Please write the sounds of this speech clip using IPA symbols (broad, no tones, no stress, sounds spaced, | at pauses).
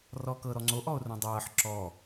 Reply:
r ɔː k ɤ ɾ ɔ ŋ͡ǀ o ʔ ɔ o̯ r õ dˤ ɤː ħ ǁ ɔ